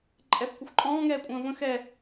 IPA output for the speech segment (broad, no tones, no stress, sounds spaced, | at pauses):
ǃʼ ɛ f kʷ ə xʷ ǃʼ ɔ̃ː ŋ ɛː kʷʼ ə̃ː v ə̃ x ɛ